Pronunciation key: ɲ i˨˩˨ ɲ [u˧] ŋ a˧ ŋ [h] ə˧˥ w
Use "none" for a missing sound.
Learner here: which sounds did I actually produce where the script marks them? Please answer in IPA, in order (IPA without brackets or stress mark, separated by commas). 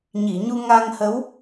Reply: u˧, h